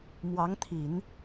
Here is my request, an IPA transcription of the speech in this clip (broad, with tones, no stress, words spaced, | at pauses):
mwɑ˧˥ŋt̪ʰi˨˩˦n